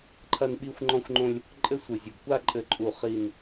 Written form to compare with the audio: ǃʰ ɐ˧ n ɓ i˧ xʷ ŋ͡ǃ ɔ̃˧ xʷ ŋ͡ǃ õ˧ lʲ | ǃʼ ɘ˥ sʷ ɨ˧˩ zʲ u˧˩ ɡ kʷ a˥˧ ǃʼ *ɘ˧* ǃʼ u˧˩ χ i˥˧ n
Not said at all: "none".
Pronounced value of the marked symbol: ɘ˧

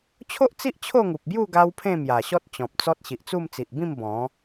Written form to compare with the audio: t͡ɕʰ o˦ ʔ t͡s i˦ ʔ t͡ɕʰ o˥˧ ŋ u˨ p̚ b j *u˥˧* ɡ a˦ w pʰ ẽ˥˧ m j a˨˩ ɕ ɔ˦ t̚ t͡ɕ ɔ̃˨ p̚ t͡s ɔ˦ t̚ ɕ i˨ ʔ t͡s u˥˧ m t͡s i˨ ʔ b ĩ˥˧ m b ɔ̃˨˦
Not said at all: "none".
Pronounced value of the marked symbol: u˥˧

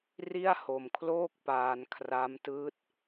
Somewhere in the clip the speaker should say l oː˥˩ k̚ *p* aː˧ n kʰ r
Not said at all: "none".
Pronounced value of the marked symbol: p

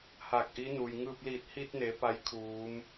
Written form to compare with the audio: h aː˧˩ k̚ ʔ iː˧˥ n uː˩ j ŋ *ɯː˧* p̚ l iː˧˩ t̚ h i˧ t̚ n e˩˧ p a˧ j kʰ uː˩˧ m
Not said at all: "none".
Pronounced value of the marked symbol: ɯː˧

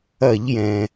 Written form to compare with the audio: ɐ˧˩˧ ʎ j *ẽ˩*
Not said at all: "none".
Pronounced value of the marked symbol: ɛ̃˩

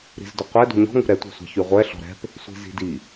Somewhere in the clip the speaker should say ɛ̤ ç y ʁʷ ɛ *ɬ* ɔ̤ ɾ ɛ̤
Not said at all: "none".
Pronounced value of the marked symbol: ɬ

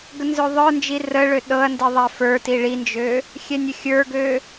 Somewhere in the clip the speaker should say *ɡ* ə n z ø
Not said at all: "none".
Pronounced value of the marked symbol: ɡ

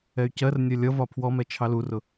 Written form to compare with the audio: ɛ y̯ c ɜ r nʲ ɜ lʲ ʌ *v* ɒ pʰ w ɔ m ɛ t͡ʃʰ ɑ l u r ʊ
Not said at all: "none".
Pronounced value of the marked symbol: v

